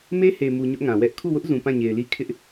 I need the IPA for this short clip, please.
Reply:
me˦he˨mu˨ ɲʊ˦ʔŋã˨ wɛ˦ʔ kʰu˦˨wʊ˦ʔzũ˨ pã˦˨ɲe˨ɪ̯li˦ kʰɪ˦ʔ

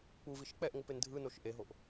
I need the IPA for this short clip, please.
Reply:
k͡puviʃ k͡pɛʔŋʷɯpen dʱɯnoʃ ʔeɦoʔ

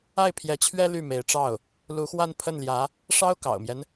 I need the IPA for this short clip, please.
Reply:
a˥˩ɪ̯pʰjɛ˧˥t͡ɕʰɥɛ˥ ly˥˩me˧˥ɪ̯ʈ͡ʂɑ˥˩ʊ̯ | lu˧˥xwa˥˧n pʰə˥˩nljä˧˥ | ʂɑ˥ʊ̯kɑ̰˨˩ʊ̯mjɛ˦n

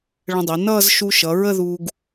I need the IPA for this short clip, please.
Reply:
ɭə̃˧dˤi˩˧nʌː˥˧z ʃu˧ʃʌ˩˧ ɹə˥˧ðuː˧ɡ

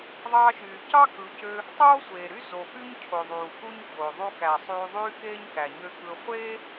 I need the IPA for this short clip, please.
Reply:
ðˤɑː˧ʃyː˨cɑ˦ kɯ˨˦cø˧ | tˤoː˦sʷeː˨ɾy˦ zo˨py˦ɲ cʰo˨ðˤuː˨ku˦ɲçoː˨ ðˤu˧kæ˨ sˤyː˧ðˤyː˦keː˦ɲ kæ˨ɲø˧ kɯ˧ χʷeː˦

